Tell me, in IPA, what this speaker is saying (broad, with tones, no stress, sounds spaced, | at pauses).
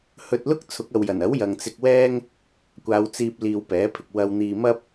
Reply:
h ɵ˧ t̚ l ʊ˥ k̚ t͡sʰ ʊ˨˥ k̚ ɐ˨ w j ɐ˨˩ n ɐ˨˥ w j ɐ˨ ŋ t͡s ɪ˧ k̚ w ɛː˥ ŋ | kʷ aː˨˧ w t͡s iː˧ p̚ l iː˧ w p ɛː˨˥ pʰ ɪ˧ k̚ w ɐ˧ w n̪ iː˧ m ɐ˥ p̚